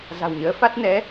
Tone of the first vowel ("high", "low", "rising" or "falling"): low